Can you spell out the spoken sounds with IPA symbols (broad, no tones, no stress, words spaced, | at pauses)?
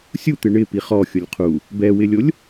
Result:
sʲut̪ɪ ɳɪ piχɔ xʲʊlʲqʰu | bɛwɪlʲolʲ